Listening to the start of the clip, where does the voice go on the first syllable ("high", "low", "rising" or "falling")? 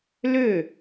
falling